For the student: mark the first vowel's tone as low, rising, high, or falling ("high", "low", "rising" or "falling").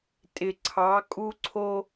low